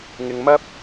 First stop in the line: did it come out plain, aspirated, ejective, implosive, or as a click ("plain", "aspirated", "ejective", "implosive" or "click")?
plain